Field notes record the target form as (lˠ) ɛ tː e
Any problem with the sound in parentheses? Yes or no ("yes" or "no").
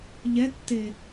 yes